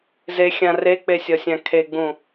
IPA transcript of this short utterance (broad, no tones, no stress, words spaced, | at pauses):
zexʲã rek͡pesʲɒsʲã kʰeɡ͡bũ